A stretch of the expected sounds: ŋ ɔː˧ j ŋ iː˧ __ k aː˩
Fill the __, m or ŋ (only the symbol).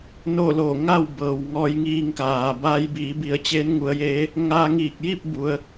ŋ